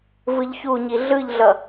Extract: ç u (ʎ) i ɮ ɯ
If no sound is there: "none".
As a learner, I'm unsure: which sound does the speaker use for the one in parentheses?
ɲ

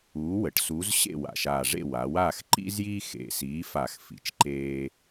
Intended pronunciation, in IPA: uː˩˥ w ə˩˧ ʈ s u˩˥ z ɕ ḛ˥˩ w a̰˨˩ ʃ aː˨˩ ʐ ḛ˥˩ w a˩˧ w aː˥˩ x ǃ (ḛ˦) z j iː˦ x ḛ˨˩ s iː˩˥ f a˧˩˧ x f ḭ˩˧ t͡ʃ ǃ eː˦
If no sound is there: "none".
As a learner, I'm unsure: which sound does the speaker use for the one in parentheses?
ḭ˦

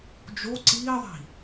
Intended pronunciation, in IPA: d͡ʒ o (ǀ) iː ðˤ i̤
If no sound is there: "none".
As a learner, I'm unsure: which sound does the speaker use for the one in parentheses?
ǀ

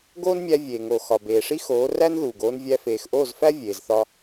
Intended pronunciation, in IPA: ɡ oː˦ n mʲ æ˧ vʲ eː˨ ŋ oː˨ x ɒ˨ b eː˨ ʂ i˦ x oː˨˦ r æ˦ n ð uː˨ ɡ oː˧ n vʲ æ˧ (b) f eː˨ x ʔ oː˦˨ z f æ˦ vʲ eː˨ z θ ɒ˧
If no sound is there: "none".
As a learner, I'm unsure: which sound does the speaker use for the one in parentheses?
none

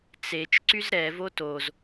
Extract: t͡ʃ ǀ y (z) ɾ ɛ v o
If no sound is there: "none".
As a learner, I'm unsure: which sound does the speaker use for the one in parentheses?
z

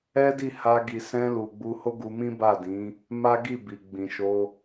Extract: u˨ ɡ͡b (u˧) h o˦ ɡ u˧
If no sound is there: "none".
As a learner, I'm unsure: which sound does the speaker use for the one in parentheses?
u˧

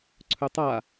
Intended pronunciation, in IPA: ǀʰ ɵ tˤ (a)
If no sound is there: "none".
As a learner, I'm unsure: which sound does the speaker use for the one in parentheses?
a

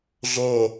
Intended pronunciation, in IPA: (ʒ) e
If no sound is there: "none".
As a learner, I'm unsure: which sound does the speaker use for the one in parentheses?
ʒ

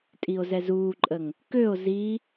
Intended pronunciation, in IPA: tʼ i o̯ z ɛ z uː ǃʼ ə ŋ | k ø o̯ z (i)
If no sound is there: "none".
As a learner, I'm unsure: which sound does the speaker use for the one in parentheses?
i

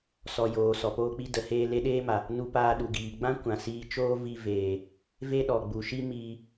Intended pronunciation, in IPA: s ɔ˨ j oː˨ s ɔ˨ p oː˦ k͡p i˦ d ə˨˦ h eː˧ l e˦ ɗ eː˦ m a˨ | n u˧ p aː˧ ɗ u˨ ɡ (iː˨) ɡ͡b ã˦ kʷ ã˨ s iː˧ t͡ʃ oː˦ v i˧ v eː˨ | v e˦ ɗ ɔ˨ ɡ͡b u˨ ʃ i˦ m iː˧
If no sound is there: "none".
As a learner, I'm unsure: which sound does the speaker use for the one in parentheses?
iː˨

